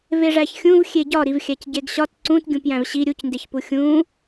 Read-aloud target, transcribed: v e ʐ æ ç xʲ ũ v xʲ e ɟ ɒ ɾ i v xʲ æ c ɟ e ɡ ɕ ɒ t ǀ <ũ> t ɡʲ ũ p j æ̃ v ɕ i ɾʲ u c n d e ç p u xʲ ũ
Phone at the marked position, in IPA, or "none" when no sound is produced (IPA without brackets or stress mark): ũ